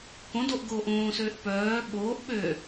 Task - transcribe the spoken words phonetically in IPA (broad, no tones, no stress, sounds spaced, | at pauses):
k õ d o ʔ ɡ oː ʔ õː s øː ʔ p œː ɓ oː ʔ ɓ ø